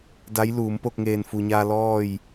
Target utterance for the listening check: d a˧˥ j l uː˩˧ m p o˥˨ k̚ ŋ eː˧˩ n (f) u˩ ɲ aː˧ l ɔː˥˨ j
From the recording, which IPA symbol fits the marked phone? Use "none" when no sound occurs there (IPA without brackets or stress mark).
f